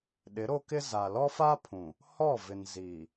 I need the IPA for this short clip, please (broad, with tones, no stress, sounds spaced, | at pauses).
ɗ ɪ˨˦ ɾ o˦ k ɪ˦ z a˨ l ɔ˦ f a˦ pʰ ũ˨ | h ɔ˦˨ v ɪ˨ n z iː˨